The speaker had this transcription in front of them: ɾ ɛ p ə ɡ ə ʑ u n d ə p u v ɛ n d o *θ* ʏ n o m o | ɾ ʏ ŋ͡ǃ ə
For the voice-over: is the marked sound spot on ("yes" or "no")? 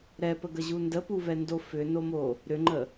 no